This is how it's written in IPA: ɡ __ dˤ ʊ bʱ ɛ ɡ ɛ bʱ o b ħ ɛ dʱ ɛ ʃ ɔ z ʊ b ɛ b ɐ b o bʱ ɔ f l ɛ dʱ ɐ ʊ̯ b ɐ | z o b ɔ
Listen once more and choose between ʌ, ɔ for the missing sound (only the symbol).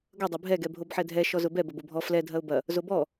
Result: ʌ